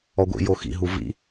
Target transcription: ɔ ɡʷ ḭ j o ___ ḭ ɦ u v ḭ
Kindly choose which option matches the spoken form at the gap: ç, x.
x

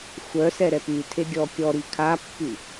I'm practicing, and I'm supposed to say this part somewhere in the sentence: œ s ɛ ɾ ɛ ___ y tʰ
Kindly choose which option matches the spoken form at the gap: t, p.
p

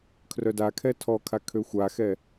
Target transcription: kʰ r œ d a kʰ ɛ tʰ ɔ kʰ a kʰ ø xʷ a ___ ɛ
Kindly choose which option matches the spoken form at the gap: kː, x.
x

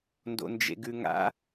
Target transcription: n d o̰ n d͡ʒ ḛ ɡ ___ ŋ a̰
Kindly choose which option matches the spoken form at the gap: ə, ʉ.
ʉ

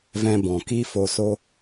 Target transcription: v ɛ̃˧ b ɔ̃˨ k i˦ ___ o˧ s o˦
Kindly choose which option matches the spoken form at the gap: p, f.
f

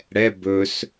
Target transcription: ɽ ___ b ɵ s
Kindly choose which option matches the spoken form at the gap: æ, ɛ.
ɛ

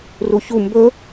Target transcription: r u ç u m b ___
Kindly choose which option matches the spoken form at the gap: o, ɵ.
ɵ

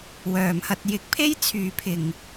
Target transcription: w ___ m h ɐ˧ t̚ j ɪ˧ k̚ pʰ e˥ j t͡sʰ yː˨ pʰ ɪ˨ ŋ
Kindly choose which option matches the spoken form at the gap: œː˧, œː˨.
œː˨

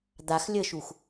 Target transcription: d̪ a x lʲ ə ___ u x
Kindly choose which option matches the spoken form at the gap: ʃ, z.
ʃ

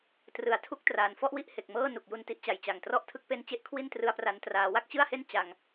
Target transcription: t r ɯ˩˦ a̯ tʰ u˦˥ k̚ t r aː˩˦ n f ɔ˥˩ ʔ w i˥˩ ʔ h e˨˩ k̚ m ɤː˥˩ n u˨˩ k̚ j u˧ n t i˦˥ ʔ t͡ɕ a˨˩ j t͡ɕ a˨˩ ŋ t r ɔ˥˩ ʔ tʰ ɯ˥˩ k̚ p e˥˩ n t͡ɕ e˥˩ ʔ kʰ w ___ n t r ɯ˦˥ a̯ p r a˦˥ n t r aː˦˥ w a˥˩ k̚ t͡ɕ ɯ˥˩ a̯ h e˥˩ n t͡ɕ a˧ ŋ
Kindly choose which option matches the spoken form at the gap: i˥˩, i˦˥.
i˥˩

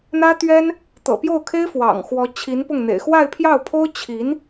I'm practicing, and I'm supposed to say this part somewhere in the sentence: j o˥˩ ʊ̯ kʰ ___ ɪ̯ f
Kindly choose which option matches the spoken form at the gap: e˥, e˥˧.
e˥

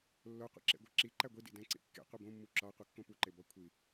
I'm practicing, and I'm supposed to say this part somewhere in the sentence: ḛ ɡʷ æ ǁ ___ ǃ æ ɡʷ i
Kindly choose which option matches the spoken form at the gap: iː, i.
i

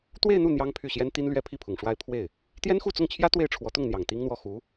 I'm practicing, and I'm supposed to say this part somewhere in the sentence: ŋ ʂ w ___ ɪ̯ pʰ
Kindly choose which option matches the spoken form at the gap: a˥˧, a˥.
a˥˧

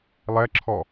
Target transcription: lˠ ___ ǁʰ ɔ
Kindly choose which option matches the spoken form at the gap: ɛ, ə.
ɛ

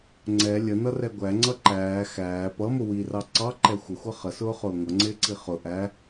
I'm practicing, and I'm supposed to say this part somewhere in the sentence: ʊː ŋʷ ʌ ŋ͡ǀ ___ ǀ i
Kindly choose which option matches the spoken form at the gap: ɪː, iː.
ɪː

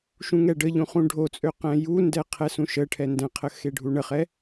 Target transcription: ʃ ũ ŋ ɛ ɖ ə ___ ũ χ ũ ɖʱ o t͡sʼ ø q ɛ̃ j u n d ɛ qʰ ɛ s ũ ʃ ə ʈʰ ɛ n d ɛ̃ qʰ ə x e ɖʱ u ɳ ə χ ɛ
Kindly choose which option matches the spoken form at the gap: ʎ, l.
ʎ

